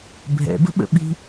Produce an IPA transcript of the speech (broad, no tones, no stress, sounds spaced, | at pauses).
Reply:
bʱ ɛ̰ b ə̤ ɓ ə̰ ɓ i̤